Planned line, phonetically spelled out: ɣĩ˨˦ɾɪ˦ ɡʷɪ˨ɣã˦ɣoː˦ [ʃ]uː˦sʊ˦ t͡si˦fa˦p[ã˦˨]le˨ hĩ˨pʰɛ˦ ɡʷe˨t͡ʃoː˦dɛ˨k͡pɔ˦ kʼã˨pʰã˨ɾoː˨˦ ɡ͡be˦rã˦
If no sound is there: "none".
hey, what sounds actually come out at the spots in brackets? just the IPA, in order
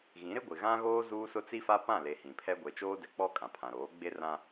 z, ã˦˨

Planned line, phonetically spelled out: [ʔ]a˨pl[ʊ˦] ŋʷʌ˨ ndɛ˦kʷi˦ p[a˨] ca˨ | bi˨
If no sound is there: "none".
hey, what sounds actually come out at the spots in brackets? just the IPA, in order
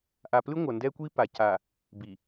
ʔ, ɯ˦, a˨

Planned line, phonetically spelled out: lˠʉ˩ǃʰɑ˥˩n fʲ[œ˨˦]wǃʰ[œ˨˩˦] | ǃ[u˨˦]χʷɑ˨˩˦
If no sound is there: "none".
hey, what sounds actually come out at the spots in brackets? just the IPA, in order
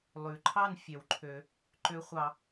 œ˨˩˦, ø˨˩˦, ø˨˦

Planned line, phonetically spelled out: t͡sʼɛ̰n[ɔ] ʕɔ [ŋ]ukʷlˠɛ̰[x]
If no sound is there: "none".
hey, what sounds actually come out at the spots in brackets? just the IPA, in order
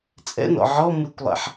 ɔ̰, m, ħ

